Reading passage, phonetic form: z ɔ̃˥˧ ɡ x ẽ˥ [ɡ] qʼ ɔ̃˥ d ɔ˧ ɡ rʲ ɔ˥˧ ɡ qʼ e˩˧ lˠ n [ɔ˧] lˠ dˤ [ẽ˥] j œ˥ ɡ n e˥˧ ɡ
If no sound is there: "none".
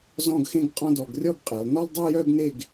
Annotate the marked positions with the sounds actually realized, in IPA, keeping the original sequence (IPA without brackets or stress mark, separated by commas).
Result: ɡ, ɔ˥, e˥